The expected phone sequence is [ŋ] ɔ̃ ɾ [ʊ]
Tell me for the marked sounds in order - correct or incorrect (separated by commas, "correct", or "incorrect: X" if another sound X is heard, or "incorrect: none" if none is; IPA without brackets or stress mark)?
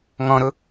correct, correct